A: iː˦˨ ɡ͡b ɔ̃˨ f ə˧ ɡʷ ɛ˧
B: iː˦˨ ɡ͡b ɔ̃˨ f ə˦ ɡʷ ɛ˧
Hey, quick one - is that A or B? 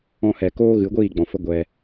B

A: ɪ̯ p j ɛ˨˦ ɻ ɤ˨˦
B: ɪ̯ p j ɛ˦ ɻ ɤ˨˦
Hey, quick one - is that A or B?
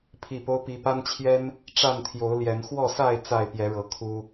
A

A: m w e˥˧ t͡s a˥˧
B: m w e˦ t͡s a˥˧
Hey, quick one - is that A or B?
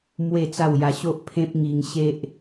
A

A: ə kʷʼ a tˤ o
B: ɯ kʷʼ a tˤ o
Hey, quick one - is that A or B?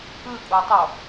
B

